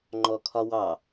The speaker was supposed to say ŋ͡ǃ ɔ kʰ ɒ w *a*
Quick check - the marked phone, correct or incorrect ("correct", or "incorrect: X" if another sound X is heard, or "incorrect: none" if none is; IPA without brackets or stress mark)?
incorrect: ɑ